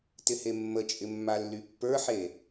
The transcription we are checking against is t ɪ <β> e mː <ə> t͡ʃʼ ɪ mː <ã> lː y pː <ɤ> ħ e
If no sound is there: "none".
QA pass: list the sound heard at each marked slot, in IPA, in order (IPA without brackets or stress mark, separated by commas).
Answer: h, ə, a, ə˞